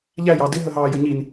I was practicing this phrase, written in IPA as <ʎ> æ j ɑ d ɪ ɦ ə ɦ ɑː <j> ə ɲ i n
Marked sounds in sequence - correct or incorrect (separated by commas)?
correct, correct